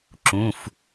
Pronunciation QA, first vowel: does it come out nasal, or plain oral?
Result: nasal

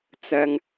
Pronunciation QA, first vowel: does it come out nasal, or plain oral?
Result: oral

